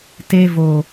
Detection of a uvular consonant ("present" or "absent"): absent